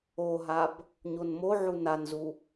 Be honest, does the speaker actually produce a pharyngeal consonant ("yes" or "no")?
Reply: yes